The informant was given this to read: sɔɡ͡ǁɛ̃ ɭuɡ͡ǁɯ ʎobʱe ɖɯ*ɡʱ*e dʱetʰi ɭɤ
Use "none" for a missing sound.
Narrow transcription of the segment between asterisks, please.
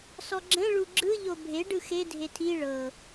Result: x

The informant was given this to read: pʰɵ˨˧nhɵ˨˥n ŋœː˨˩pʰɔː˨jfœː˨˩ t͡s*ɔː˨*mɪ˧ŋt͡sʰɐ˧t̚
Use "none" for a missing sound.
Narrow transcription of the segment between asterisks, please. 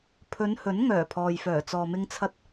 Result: ɔː˨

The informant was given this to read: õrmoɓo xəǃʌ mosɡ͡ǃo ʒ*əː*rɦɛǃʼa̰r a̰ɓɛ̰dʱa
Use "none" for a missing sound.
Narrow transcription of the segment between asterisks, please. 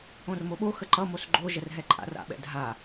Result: ə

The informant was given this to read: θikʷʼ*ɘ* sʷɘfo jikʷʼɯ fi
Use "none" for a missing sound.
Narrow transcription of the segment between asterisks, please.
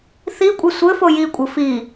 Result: ɘ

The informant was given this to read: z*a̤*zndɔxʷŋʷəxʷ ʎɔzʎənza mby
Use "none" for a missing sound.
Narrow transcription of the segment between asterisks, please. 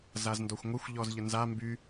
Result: a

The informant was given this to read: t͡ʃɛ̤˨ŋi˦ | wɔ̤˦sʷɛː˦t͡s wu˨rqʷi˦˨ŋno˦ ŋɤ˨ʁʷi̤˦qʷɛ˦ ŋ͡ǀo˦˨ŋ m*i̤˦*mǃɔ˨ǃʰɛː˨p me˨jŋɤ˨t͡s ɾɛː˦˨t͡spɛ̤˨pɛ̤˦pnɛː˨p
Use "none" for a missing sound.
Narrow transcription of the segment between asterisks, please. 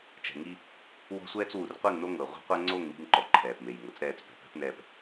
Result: i̤˦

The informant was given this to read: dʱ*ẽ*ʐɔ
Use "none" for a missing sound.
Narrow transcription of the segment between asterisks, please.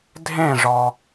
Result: ẽ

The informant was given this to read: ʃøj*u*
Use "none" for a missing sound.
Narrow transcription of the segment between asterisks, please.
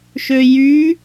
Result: y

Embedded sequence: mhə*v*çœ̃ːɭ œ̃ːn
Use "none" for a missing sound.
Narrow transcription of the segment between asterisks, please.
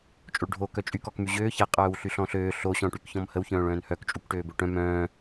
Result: w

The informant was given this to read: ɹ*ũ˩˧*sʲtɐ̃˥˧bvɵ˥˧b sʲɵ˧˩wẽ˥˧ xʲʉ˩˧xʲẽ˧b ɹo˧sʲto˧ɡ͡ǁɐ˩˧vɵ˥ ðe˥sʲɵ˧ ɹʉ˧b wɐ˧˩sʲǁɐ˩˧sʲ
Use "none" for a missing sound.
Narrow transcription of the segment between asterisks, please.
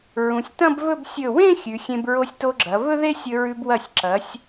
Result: ũ˩˧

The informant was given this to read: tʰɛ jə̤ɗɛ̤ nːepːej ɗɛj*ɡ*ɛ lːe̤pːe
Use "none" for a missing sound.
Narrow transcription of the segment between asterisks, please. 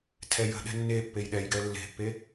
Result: ɡ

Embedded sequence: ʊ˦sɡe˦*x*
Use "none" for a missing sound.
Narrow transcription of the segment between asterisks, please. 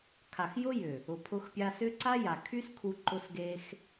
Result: x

